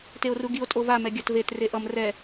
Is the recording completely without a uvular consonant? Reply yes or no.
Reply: yes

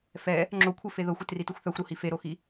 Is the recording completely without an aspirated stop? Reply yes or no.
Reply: no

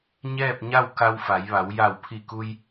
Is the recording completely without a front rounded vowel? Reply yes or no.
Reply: yes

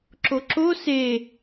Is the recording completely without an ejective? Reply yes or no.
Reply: yes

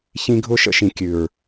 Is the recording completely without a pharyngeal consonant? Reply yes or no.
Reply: yes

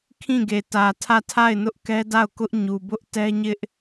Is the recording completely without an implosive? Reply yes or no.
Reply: yes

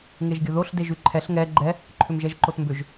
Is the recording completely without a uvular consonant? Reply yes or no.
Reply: yes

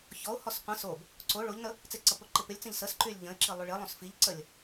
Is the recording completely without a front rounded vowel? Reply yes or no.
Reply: no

